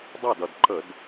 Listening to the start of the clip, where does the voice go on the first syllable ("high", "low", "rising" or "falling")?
falling